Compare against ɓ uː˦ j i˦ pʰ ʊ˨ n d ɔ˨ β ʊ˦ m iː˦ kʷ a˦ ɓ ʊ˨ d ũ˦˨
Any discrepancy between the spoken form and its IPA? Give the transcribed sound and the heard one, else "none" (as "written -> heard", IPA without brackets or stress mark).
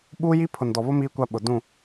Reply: none